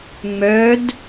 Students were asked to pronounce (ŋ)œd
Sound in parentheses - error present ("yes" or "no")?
yes